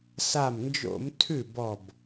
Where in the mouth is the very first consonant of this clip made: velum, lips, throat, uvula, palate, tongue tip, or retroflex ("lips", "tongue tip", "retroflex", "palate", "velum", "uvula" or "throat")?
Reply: tongue tip